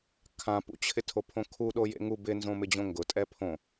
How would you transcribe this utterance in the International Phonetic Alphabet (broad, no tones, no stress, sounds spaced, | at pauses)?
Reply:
kʰ ã p ṵ t͡ɕʰ ɪ tʰ o pʰ õ kʰ u ɗ o j ḛ ŋ u b ɪ n z õ m ɪ d͡ʑ õ ŋ ɡ ʊ tʼ ɛ pʰ õ